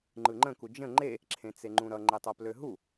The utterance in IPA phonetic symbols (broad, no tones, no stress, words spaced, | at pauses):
ŋ͡ǃɯŋ͡ǃə̃ku d͡ʒə̃ ŋ͡ǃe | ǁʰẽt͡seŋ͡ǃũɾʌ ŋ͡ǃetˤʌpløɦu